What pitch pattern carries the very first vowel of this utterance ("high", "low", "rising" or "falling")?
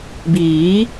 rising